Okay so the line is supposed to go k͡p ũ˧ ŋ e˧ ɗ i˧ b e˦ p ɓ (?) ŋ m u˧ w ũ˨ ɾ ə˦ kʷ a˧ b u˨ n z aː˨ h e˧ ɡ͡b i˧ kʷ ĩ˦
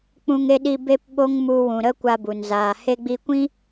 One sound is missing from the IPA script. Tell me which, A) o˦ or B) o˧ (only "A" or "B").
A